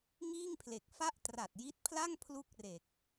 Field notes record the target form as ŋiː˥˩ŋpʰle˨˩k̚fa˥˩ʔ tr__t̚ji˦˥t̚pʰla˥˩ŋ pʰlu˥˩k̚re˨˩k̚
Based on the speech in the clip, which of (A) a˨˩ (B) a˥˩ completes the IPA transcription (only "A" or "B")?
A